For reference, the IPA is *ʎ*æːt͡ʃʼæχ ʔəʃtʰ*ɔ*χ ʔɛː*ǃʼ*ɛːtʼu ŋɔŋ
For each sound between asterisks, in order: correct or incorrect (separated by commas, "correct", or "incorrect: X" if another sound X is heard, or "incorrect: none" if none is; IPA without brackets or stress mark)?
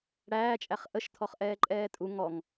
incorrect: ɽ, correct, correct